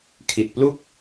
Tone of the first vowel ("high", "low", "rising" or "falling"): low